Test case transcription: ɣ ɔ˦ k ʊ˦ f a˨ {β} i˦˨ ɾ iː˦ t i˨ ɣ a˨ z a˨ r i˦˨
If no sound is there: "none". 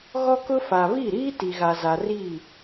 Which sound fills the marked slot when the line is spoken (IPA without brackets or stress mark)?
β